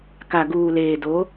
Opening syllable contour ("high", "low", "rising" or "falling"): low